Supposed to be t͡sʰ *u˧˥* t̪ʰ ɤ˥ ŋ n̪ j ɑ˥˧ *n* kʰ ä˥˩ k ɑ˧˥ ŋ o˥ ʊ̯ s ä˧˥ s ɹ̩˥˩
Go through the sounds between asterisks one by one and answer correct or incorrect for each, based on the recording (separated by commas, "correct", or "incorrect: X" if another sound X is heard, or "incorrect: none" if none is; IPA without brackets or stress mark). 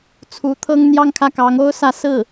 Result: correct, incorrect: ŋ